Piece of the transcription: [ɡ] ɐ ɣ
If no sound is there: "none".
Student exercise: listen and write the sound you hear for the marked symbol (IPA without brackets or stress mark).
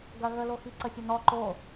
ɡ